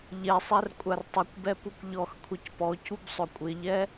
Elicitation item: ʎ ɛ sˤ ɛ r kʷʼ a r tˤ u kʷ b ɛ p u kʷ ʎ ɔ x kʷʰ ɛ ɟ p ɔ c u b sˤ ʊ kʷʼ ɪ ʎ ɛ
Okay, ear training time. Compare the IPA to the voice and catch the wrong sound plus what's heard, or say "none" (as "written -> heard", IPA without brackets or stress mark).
ɟ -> c